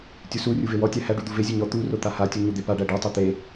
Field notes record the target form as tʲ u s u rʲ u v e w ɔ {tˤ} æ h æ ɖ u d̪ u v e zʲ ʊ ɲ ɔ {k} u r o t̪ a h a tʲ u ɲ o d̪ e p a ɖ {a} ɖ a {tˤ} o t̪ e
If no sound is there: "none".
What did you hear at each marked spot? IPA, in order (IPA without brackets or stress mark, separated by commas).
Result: tʲ, t̪, æ, tˤ